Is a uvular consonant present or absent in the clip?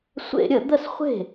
present